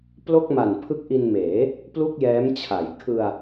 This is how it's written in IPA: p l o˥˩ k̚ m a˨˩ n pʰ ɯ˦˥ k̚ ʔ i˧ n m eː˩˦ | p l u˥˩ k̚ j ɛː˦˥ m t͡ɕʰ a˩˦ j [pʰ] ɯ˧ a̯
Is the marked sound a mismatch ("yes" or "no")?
yes